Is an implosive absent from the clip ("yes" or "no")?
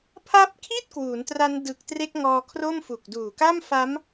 yes